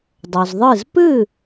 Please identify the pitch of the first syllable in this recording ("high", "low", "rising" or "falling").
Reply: low